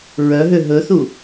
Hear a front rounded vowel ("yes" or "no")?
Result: yes